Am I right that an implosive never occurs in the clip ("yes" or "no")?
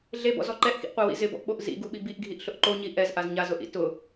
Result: no